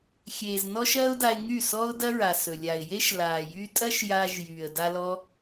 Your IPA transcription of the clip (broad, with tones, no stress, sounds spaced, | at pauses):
xʲ eː˨ z n ɔ˦ ʃ ɐː˦ ʊ̯ d a˧ ɪ̯ ŋ y˦˨ s ɔ˦ ʊ̯ d ɐ˦ ɹ a˨ s ɵ˨ lʲ a˨ ɪ̯ j e˦ ʃ l aː˨ j y˧ tʼ ɐ˦ ʃ j aː˧ ʒ j yː˨ ə̯ d a˦ l ɔ˦